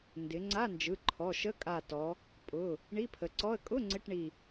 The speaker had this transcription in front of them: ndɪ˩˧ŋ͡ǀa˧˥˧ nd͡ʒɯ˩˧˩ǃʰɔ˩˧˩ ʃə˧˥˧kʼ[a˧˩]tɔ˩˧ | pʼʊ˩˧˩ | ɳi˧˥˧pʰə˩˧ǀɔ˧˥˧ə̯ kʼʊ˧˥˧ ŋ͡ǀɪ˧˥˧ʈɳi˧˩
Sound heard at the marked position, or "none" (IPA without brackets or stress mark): a˧˩